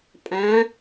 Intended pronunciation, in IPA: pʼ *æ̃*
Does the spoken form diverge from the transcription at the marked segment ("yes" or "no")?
no